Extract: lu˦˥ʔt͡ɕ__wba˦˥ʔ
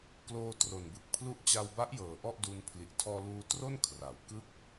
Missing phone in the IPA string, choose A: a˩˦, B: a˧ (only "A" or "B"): B